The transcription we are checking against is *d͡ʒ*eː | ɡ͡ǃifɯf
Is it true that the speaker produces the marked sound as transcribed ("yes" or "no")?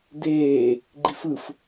no